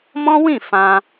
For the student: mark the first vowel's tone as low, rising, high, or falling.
high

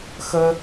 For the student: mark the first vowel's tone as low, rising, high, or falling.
high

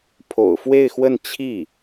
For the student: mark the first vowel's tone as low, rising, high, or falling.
low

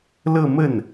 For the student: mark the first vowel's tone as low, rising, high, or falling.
falling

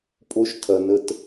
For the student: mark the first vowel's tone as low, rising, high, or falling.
high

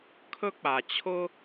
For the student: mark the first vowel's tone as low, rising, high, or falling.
high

